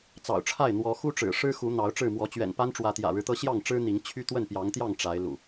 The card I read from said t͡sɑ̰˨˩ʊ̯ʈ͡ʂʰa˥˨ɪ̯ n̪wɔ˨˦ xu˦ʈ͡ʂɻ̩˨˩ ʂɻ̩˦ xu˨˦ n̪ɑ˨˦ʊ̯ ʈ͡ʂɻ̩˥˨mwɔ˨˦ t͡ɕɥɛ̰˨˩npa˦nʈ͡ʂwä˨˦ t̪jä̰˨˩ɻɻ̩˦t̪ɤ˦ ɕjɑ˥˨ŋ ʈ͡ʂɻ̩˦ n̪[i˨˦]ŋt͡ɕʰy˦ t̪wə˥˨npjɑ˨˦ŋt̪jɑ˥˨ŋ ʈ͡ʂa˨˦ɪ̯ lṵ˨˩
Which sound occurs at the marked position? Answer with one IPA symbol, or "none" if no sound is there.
i˨˦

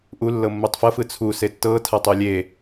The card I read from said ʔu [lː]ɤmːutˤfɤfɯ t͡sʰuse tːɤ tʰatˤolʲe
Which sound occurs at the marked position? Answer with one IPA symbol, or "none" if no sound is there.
lː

